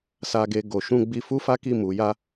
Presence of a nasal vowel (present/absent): present